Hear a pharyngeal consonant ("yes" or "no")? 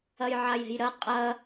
yes